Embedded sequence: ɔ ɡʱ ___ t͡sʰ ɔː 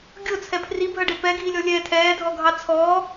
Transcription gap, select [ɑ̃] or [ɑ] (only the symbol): ɑ